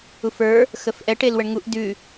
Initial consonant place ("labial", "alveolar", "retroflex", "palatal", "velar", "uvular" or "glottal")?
labial